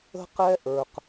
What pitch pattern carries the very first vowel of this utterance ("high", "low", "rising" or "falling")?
high